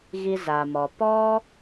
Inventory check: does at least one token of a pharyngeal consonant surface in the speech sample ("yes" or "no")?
no